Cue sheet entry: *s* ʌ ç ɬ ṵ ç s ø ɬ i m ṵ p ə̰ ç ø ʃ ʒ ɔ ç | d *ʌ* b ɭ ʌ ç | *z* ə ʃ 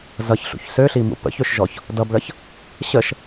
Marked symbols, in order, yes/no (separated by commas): no, yes, no